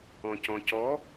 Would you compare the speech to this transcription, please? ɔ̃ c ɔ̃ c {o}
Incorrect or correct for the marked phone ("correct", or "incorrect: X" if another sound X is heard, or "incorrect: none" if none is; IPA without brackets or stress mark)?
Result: incorrect: ɔ